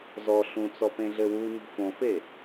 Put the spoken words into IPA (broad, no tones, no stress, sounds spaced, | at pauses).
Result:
z ɔ ɬ ũ t͡s ɔ p ẽ ɮ ɘ w u ɲ ṳ f õ f e